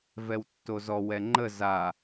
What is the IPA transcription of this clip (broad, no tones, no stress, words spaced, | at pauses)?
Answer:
vɛwtːozɔ wɛŋ͡ǃə za